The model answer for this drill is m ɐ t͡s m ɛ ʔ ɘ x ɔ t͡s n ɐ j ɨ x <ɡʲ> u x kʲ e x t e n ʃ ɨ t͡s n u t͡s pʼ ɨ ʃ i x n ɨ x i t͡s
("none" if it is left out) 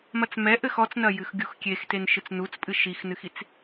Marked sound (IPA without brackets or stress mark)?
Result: ɡʲ